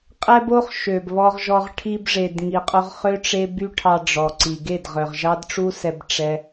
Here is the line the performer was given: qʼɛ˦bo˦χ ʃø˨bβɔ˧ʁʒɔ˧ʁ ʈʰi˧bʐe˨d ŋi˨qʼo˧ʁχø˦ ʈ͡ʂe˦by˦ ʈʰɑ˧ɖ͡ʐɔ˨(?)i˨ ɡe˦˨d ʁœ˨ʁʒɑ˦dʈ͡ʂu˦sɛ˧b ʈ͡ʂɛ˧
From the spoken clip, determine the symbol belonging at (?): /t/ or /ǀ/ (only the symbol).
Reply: ǀ